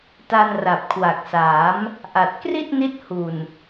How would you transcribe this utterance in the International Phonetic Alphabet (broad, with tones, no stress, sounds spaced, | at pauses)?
t a˧ n r a˨˩ p̚ kʰ w a˨˩ k̚ s aː˩˦ m | ʔ a˨˩ t̚ k r i˥˩ t̚ n i˦˥ t̚ h u˨˩ n